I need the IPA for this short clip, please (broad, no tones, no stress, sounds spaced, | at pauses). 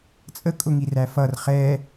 t͡sʼ ə kʼ ʊ ŋ i r æ f ʌ r χ ɛ